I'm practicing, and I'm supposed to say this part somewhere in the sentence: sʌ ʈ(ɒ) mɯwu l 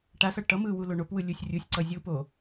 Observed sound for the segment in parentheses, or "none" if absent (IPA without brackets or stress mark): ʌ